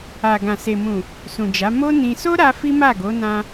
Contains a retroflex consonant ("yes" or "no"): no